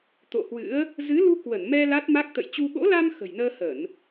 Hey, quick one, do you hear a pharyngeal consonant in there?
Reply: no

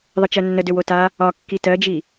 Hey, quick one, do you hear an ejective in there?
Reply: no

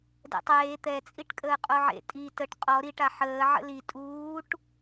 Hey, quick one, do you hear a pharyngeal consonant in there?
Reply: yes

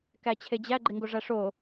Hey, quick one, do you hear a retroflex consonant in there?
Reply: yes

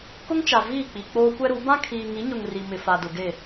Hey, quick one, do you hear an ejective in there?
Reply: no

